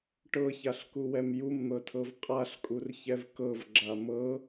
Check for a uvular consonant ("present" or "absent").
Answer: present